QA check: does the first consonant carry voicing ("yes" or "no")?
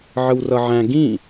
yes